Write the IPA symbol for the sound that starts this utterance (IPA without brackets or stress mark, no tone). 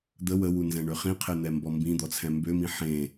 d̪